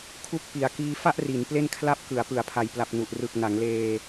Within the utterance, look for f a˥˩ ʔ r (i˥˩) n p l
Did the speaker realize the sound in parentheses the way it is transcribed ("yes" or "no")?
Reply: no